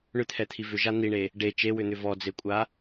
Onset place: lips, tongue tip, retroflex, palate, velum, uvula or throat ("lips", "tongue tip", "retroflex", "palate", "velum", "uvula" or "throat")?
retroflex